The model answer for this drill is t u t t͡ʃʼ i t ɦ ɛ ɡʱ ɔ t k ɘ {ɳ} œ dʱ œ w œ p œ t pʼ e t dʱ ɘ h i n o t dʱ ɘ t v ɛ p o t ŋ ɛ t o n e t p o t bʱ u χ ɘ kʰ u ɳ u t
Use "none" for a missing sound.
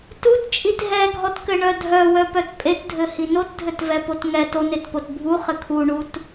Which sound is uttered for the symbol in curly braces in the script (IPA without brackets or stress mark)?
ɳ